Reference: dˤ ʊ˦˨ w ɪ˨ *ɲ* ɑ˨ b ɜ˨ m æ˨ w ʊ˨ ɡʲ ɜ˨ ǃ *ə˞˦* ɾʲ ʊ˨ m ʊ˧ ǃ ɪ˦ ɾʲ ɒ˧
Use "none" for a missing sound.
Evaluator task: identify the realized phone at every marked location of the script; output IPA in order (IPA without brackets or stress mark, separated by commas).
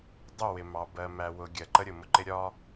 m, ə˦